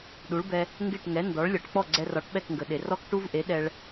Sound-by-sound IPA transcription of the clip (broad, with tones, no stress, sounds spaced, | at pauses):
ɗ u˩˥ ɭ b ɛ˧ | ŋ ɡ e˥˩ ʈ ŋ ɛ˩˥ n d ɔ˩˥ ɭ lʲ ɔ˩ ʈ k͡p ɔ˥˩ ɡ͡ǀ ɛ˧ r ɒ˩˥ ʈ ɓ ɛ˥˩ k ŋ ɡ ə˩ ɗ e˩ r ɔ˥ k ʈ u˥ v ʔ e˩˥ ɗ ɛ˧ ɭ